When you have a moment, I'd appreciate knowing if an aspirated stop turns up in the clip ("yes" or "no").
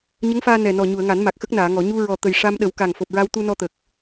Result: no